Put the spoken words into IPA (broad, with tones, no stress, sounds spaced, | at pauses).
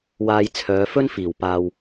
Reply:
w aː˧ j t͡sʰ œː˨˧ f ɵ˥ n f iː˨˩ w p aː˨ w